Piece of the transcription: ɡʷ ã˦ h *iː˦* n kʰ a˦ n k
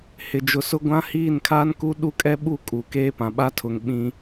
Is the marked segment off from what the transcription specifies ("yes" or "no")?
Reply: yes